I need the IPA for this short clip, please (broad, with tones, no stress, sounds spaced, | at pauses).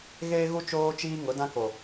ɣ eː˦ ɣ u˦ t͡ʃ oː˦ t͡ʃ iː˦ ŋ ʊ˨˦ d ã˦ k o˨